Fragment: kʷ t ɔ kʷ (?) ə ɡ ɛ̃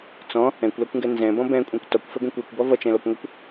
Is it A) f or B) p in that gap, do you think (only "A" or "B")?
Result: A